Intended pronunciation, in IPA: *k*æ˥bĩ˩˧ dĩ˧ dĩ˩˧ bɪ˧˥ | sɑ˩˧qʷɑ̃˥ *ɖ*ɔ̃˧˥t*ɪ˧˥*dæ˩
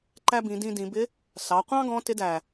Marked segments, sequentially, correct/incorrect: incorrect: ǃ, incorrect: ɡ, correct

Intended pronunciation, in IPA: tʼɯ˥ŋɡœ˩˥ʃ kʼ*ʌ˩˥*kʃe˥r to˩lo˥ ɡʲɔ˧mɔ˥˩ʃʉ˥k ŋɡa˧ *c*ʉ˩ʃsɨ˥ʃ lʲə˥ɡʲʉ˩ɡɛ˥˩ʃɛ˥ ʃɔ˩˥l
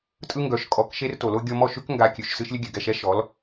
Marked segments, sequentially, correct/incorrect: incorrect: ɔ˩˥, incorrect: kʲ

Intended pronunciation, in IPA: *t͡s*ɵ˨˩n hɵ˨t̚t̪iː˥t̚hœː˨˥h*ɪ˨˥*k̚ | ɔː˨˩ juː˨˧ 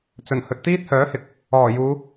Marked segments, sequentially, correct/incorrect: correct, incorrect: ɪ˨

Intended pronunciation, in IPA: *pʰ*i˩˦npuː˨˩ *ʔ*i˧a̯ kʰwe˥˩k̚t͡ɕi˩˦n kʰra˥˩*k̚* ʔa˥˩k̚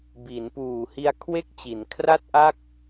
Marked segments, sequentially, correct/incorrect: incorrect: b, incorrect: h, incorrect: t̚

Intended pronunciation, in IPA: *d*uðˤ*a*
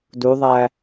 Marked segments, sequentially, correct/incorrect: correct, incorrect: æ

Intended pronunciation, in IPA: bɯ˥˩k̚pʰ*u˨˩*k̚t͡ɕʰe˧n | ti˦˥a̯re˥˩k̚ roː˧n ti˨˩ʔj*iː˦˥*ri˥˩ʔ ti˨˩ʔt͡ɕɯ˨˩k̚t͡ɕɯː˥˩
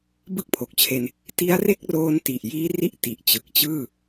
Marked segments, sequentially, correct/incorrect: incorrect: o˨˩, correct

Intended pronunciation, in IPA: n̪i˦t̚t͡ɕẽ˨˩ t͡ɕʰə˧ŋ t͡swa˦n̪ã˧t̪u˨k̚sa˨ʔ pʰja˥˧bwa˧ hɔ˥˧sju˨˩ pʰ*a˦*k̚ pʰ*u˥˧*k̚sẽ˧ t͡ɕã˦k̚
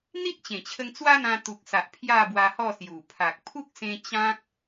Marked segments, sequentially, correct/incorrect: incorrect: a˨, incorrect: u˦

